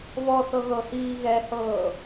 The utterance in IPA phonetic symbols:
β ɔ θ ɤ ɣ ɤ h iː ɣ ɛ h ɤː

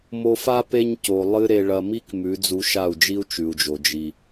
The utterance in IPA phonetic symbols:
m o˧ f a˦ p e˦ ɲ c o˨ lˠ ɨ˦ ɾ e˧ ɭ ɐ˧ m i˦ k m ʉ˨˦ d͡z u˧ ʃ a˦˨ u̯ d͡ʒ i˦ u̯ t͡ʃ ʉ˨ u̯ d͡ʒ o˨ d͡ʒ i˨

